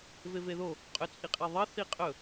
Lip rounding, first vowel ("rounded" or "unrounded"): unrounded